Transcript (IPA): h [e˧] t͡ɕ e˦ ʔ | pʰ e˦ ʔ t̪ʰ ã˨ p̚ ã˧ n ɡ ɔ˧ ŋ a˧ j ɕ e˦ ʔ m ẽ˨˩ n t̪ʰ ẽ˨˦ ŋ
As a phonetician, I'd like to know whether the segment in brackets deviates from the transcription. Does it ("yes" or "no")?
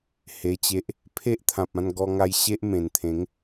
no